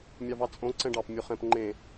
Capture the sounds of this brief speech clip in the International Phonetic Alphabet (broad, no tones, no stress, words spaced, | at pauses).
mʲɑvɑt͡sʼõ ǀɛ̃ɖɑp mʲoχɛ̃p ŋ͡ǃẽ